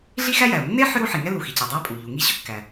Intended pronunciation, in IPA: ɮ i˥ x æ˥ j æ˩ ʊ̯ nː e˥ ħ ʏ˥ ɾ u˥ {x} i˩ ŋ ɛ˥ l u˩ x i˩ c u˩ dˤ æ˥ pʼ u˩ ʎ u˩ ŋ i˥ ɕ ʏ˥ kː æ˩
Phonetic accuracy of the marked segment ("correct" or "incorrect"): incorrect